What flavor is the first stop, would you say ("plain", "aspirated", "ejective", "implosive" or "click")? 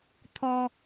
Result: aspirated